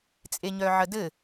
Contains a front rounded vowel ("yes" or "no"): yes